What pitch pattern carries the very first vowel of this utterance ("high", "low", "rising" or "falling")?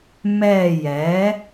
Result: falling